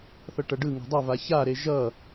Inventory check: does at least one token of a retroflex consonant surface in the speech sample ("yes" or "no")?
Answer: yes